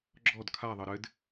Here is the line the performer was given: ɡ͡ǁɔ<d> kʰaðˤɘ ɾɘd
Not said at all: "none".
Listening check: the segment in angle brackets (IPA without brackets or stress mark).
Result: d